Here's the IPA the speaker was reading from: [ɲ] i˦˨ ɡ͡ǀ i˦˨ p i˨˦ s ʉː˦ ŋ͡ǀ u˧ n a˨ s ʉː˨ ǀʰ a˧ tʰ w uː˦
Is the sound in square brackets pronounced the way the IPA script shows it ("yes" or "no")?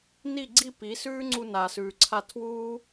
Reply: no